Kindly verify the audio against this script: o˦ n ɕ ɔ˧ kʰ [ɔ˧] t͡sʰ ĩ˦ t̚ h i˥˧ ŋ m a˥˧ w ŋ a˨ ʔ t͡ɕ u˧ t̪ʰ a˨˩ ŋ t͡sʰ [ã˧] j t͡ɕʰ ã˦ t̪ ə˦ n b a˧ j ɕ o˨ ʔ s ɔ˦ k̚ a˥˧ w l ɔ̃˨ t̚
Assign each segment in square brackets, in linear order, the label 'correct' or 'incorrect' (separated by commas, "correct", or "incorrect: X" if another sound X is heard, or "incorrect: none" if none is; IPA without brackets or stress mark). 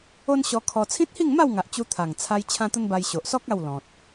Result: correct, incorrect: a˧